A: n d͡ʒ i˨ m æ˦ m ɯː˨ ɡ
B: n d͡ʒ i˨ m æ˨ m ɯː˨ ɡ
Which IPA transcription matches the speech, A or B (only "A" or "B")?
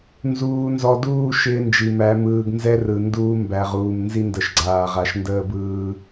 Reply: B